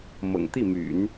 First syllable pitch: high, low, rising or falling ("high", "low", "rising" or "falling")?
low